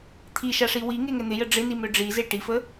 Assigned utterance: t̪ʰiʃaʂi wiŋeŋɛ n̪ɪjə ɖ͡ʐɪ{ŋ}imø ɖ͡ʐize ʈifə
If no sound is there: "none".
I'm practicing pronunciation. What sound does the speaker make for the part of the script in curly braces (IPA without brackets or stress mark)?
n